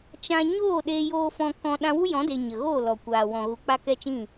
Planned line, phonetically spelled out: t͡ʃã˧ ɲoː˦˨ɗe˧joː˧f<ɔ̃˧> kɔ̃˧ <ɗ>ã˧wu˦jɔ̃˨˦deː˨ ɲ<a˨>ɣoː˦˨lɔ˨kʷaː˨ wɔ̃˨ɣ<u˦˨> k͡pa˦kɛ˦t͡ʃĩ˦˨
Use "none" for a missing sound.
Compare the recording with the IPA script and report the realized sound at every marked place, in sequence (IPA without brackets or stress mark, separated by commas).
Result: ɔ̃˧, ɗ, ə˨, u˨